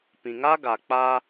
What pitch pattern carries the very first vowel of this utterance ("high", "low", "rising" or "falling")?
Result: low